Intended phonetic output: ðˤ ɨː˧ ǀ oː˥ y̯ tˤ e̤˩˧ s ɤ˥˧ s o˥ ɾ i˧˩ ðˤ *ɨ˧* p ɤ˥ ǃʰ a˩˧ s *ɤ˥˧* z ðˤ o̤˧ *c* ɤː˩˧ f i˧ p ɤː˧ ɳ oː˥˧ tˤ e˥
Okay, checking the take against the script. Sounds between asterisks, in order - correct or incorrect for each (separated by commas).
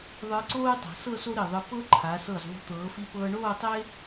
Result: correct, incorrect, incorrect